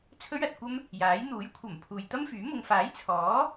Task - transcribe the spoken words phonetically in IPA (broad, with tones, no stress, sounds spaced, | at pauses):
t͡sʰ ɵ˥ ɥ ɐ˨ t̚ kʷ ɐ˥ m | j aː˨˥ j n̪ uː˨˥ j kʷʰ ɐ˨˩ m pʰ uː˨ j t̪ ɐ˥ m f yː˨˥ m ʊ˧ ŋ f aː˨˥ j t͡sʰ ɔː˨˥